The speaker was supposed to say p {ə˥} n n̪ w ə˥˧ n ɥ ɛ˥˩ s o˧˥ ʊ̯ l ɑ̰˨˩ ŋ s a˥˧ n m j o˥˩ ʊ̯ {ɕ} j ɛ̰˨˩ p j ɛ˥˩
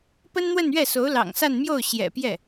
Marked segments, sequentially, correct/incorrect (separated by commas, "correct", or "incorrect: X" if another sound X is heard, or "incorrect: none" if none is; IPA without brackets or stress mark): correct, correct